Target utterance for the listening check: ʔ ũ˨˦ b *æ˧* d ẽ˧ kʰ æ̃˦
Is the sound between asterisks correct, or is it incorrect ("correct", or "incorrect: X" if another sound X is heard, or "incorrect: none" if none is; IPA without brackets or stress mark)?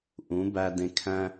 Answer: correct